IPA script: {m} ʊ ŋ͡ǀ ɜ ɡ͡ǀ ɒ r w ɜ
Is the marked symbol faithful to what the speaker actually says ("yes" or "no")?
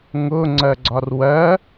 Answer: no